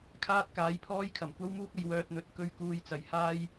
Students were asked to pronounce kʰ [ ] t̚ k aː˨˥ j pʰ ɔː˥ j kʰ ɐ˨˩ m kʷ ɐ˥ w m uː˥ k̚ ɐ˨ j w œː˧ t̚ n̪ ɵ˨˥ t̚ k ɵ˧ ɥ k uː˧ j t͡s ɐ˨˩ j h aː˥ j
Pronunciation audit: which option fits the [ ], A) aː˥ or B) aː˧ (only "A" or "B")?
A